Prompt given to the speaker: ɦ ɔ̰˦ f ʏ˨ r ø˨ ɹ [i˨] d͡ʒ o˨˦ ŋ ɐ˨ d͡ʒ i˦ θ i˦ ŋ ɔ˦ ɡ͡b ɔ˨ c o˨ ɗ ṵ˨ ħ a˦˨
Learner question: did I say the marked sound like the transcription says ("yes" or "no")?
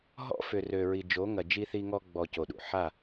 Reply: yes